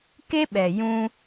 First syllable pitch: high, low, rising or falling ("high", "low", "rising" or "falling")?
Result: high